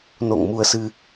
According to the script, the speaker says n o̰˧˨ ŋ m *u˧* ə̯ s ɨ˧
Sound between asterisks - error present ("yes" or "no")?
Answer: no